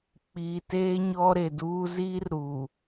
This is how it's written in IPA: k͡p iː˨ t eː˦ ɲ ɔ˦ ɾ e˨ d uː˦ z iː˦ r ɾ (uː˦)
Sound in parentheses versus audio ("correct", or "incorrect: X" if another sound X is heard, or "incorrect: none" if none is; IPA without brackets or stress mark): incorrect: uː˨